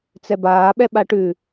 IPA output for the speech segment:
t͡sɛbaː ɓɛɓaʈʉ

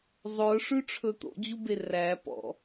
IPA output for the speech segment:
zˤɵʂʉ ʈ͡ʂʰɵt̪o̰d͡ʑu beræ pɔ̰

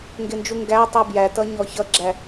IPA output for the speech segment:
ŋɡɪnd͡ʒu ŋɡætˤu bjætʌ ɲɔçʌɡ͡ǁæ

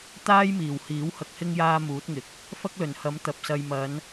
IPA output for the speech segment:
t̪aː˥j miː˨˩whiː˨˥w hɐ˧k̚hɪ˥ŋ jaː˥muː˨˥t̚ŋɪ˨˥k̚ | fɐ˥k̚lɵ˨˩nhɐ˨˥m t̪ɐ˨p̚sɐ˧j mɐ˨˧n

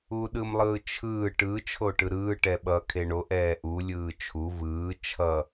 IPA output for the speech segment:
uɗɯmlˠɯːt͡ʃʰɯː ʈɯ t͡ʃʰoʈɯɾɯː ʈɛɓʌ kʰeɳo ʔɛːʔu lʲɯːt͡ʃʰu vɯː t͡ʃʰʌ

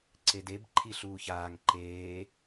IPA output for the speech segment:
ǀedeb ǃʰi ɬuːçaːŋ ǃeː

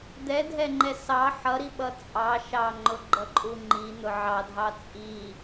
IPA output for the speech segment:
d̪ɛdʱɛŋ͡ǃɛ sɑ ħʌɾiɓʌ t͡sʼɑ ʃɑŋ͡ǃʊɡ͡ǃʌǃʼu ŋ͡ǃin̪ʊ ʕɑdʱɑ t͡sʼi

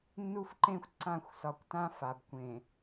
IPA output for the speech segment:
nːu˦fǃẽ˦xʷ ǀã˦˨xʷsɒ˨kʷtã˦ fa˨bkʷẽ˨

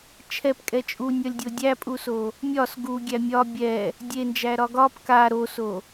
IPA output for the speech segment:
t͡ʃʰɛpkʼɛ t͡ʃʼunʲɒlʲdʲo dʲæpʼuso | mʲɒs ɡuɡʲæ mʲɒ bʲɛ | dʲend͡ʒæɾɒ ɡɒp ka ɾoso

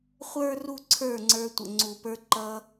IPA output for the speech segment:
χʷə˞˦ ru˦ǀʰə˞˦˨ŋ͡ǀə˞˧ tʷə̰˨ŋ͡ǀu˨pə˞˧ ǃʌ˧

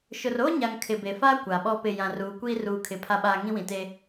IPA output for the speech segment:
ʃʊ˨roː˦ɲa˨ŋ kʰɪ˨be˨faː˦ kʷa˨ɓɔ˦pɪ˦˨ jã˨ruː˨˦kʷiː˦ ruː˦˨kʰɪ˦˨pʰa˦ɓaː˦ ŋĩ˦wĩ˨te˦

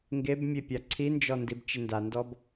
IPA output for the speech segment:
ŋɡebmʲe pʲaǀʰind͡ʒɔ ndibt͡ʃɪndandɔb

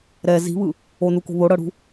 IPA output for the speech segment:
ɾɛ zi̤βɯ | onuko̤ βoɽɤɽṳ

